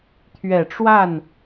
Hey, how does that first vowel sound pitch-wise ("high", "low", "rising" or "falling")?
low